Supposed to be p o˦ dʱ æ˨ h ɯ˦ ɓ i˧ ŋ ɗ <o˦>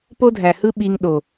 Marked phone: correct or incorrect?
incorrect